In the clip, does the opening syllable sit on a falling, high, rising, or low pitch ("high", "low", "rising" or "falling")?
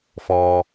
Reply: low